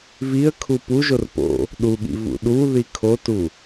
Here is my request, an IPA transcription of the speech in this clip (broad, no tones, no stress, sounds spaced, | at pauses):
v i ə̯ kʰ u p u ʒ o r p o̰ | ɗ u ɠ ḭ v ṵ ɗ u ð i kʰ o t u